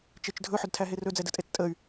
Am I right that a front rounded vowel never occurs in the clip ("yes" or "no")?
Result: no